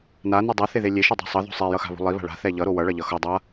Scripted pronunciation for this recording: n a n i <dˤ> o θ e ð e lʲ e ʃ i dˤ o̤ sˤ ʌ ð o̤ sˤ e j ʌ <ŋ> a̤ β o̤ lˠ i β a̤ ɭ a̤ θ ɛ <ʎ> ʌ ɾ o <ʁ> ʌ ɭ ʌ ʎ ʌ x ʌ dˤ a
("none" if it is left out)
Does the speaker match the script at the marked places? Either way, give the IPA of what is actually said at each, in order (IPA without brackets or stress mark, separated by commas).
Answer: dˤ, x, ʎ, w